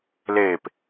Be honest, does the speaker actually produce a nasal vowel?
no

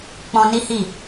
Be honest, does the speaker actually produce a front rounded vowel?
no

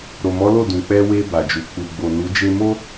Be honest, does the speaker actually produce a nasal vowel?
yes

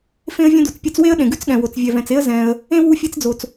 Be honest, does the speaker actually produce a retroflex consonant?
no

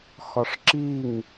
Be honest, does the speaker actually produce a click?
yes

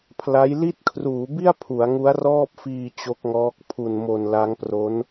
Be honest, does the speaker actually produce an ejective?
no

